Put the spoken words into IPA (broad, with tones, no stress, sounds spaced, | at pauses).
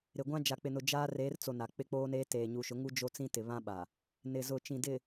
ɾ ɪ˨ ɡʷ ã˦ d͡ʒ a˨ k͡p ɪ˨ n ʊ˨ d͡ʒ aː˦ r eː˨˦ r t͡s o˨ n a˨ k͡p ɪ˦ k͡p oː˦ n eː˦ t eː˨ ɲ u˨ ʃ ʊ˨˦ ŋ u˦ d͡ʒ o˦ t͡s ĩ˦ t ɪ˨ β ã˦ ɓ a˨ | n ɪ˨ z ʊ˨ t͡ʃ ĩ˨ d ɪ˨